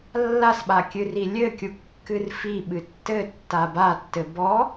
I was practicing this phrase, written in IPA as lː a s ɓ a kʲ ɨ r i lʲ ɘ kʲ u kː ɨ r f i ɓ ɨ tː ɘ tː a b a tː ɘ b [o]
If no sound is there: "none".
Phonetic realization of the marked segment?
ɔ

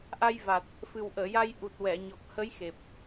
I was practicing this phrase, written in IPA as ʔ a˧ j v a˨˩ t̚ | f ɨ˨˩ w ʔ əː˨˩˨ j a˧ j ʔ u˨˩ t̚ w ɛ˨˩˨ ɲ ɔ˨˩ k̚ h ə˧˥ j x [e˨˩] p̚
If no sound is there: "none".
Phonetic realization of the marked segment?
e˨˩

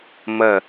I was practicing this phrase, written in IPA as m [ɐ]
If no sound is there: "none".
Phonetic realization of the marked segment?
ɐ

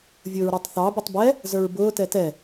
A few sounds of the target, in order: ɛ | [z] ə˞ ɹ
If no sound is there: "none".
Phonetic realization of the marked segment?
z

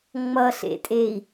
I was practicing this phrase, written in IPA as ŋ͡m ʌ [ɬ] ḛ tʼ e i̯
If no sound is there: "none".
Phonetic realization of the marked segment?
ɬ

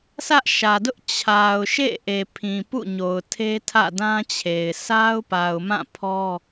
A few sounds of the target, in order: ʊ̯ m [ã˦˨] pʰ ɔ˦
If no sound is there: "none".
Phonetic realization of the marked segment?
ã˦˨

